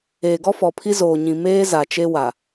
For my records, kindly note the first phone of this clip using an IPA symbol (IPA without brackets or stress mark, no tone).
eː